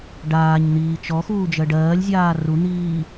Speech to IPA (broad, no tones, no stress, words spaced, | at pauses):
ɖaːɲn̪iː t͡ʃɔxuː d͡ʒɜɖɜːlʲzʲaː run̪iː